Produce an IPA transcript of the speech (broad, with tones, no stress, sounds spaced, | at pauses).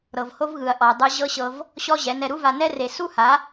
ɾ ɤ˨ v h o˦ v ɣ ɯ˨ ɐ̯ ʔ ɔ˨ dˤ ɯ˧ ʑ ɤ˦ ɕ ɤ˧ v | ɕ ɔ˦ ʑ ɛ˨˦ n ɛ˧ ɾ u˦ v a˧ n ɛ˦ r e˨ s u˦ h a˨˦